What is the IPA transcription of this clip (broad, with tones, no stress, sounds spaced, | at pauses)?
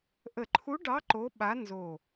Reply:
ʔ ə˧˩ ǃʰ u˧˥ ɖ ɑ˧˥ ǃ o˧˥ ɓ a˧˥ n z o˧˩